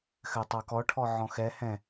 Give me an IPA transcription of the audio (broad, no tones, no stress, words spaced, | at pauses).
xɘtˤɑkɔʈʰɔ ʕɔ̃xɛ hɛ̃